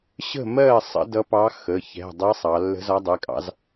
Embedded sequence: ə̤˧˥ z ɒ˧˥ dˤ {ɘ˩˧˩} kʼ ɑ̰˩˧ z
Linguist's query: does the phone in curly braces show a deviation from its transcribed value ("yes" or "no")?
yes